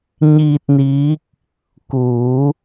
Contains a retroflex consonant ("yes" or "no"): no